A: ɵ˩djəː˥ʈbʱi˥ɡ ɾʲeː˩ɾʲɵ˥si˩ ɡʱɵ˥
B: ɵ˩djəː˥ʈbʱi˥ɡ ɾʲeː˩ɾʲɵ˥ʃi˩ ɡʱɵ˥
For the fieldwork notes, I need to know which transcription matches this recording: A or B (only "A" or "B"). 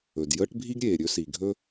A